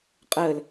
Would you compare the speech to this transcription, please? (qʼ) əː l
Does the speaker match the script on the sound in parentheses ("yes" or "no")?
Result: yes